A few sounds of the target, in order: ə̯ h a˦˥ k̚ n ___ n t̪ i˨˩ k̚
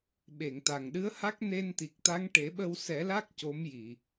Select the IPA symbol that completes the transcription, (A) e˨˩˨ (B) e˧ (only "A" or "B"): B